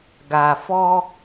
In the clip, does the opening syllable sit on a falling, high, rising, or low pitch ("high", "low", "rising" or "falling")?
low